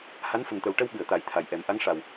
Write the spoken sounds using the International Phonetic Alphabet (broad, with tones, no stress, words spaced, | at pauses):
ha˧˥nfə˨˩ŋt̪ə˨˩w ʈə˧w ɓɨ˨˩˨ə̯ t̪a˨˩˦jt̪ʰa˨˩jʔɛ˨˩˦m ʔa˧˥ŋ ʂa˨˩w